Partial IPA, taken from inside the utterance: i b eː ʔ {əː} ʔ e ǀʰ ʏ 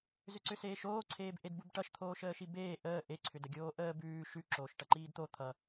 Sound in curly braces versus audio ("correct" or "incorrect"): correct